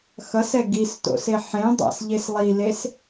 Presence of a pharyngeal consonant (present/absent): present